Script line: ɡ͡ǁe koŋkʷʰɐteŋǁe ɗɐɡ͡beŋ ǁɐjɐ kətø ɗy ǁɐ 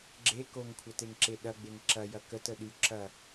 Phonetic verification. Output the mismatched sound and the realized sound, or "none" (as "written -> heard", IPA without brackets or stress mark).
ø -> ə